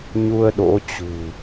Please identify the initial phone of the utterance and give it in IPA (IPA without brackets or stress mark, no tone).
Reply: ɲ